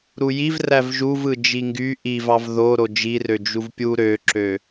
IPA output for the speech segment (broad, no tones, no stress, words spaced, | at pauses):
ɾujiv rævʒuvɯ d͡ʒiŋɡy ʔivɑv ðoɾo d͡ʒirø d͡ʒuvpʲu ɾøǁø